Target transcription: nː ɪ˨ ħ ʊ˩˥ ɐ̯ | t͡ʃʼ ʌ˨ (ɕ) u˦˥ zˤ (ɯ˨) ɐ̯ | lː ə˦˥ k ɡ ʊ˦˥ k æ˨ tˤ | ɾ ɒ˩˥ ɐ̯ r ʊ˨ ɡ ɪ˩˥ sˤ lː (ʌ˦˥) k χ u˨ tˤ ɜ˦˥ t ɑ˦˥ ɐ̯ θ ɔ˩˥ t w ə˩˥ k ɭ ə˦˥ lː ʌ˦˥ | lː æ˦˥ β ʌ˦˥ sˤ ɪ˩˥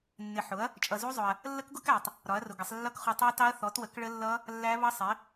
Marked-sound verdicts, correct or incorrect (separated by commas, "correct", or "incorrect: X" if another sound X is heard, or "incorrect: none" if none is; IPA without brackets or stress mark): incorrect: z, incorrect: ʊ˨, correct